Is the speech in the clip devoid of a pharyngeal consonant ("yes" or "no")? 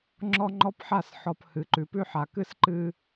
no